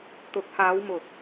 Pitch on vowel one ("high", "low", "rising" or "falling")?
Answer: rising